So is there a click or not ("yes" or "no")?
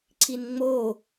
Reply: yes